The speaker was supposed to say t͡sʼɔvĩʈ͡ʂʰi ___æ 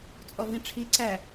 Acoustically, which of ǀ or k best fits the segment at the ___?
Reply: ǀ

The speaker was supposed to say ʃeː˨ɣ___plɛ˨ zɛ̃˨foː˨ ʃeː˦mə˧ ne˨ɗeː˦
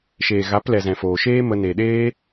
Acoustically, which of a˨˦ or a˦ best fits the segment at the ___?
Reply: a˨˦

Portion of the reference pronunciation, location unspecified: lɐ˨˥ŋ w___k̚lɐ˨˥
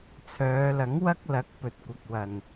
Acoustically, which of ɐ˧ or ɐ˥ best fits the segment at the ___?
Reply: ɐ˥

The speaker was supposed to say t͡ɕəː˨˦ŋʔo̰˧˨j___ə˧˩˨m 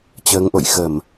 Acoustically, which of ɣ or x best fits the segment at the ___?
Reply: x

